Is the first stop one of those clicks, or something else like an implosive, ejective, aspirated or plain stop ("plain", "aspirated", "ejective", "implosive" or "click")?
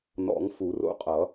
ejective